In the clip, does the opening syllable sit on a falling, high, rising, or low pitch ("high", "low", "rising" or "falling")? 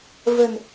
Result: low